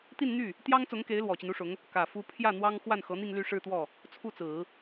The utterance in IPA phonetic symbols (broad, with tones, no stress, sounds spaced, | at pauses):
t̪ i˥˧ n n̪ y˥˩ | t̪ j ɑ˥ ŋ t͡s ʊ˧˥ ŋ k e˧˥ ɪ̯ l w ɔ˨˩ t͡ɕ i˦ n u˥ ʂ ʊ˧˥ ŋ | k ä˨˩ f u˥ pʰ j ä˥˩ n̪ w ɑ˥ ŋ x w a˥˩ n x ɤ˧˥ n̪ i˥˧ ŋ l y˥˧ ʂ ɻ̩˥˧ t̪ w ɔ˥˩ | t͡sʰ u˥˩ t͡s ɹ̩˨˩˦